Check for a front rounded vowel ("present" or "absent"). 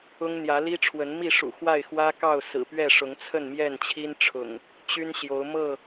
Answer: present